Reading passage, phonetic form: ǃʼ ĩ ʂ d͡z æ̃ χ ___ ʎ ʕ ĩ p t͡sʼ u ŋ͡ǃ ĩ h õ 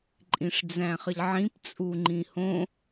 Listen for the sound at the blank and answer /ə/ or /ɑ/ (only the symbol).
ə